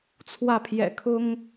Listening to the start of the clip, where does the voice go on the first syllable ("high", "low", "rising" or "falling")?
falling